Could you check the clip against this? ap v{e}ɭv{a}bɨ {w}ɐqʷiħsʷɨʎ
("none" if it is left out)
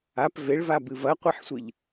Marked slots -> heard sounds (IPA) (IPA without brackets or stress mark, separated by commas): e, a, v